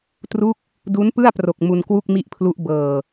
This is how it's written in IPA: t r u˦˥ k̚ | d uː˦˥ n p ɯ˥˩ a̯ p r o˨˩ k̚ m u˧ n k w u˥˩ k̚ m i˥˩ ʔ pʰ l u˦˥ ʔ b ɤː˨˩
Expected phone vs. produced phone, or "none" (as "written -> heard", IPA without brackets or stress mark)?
uː˦˥ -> u˦˥